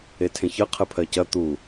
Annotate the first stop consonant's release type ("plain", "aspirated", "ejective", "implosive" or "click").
aspirated